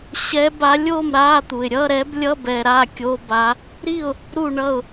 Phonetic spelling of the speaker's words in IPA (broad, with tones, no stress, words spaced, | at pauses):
ɕɛ˧˥ba˧˥lʲo˥˨m ɾa˧˥˧t̪u˨ɪ̯ ɾʲʌ˧˥˧ɾɛ˧˥b lʲʌ˧˥˧bɛ˨ ɾa˥˨ kʲo˧˥˧ba˧˥ | ɾi˥˨ʊ̯ | ɾu˥˨ɳʌ˥˨ʊ̯